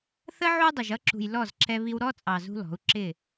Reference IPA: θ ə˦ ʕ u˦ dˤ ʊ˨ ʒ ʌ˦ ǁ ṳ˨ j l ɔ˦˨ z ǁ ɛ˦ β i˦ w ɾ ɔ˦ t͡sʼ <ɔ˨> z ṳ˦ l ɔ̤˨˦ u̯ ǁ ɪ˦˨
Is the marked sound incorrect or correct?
incorrect: ɑ˨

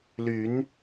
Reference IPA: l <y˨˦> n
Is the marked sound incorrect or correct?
correct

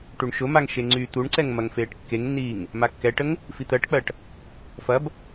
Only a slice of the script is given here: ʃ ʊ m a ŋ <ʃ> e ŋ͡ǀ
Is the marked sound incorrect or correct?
correct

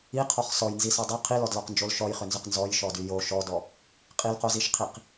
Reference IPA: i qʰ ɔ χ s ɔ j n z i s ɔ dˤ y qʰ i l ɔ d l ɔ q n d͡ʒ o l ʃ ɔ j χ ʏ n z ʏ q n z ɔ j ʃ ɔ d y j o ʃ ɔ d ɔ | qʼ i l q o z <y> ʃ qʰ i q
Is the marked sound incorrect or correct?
incorrect: i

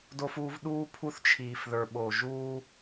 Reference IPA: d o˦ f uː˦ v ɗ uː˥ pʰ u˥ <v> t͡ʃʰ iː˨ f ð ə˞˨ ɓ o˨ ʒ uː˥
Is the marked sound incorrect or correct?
incorrect: θ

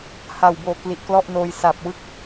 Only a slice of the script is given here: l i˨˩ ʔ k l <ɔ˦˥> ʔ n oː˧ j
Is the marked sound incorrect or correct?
incorrect: ɔ˥˩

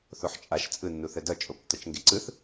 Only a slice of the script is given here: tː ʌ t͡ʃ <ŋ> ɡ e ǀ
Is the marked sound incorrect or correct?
correct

